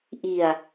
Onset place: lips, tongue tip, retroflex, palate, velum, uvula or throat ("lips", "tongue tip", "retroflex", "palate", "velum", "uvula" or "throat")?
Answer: throat